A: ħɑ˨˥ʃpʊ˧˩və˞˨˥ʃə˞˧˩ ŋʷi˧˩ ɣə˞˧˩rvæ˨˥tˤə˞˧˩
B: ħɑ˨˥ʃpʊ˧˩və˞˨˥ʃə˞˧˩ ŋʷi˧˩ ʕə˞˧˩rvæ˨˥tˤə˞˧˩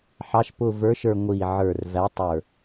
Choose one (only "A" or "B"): B